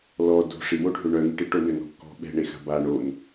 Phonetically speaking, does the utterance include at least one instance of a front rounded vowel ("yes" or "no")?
yes